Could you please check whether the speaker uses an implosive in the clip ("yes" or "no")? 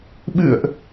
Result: yes